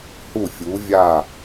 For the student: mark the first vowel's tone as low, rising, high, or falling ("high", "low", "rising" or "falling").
falling